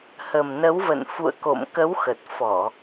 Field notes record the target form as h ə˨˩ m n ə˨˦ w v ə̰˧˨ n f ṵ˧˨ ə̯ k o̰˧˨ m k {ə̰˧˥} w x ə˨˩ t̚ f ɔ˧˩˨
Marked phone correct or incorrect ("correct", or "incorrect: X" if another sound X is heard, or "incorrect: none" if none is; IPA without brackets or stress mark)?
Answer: incorrect: ə˨˦